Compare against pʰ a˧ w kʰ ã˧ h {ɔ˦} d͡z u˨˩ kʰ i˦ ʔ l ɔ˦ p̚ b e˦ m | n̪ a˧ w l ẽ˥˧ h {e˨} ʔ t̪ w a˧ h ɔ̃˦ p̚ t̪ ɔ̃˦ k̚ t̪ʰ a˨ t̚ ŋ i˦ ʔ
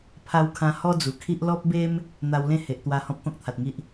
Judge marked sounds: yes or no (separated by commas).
yes, yes